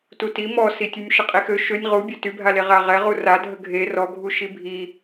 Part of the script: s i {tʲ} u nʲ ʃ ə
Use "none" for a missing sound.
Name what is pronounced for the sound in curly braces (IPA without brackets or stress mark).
tʲ